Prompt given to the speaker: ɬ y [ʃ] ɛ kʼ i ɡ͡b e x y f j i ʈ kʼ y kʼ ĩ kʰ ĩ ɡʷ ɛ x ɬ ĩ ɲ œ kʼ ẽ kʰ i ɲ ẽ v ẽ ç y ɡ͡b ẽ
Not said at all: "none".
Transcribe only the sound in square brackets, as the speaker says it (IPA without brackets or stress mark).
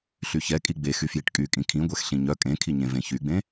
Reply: ç